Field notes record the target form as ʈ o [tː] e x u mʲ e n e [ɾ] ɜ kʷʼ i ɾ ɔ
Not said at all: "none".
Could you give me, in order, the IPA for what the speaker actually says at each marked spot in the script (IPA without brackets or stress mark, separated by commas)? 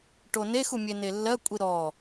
n, lː